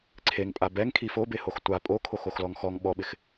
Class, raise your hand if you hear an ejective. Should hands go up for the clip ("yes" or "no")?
yes